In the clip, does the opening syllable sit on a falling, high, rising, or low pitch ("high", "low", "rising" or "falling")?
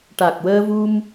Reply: low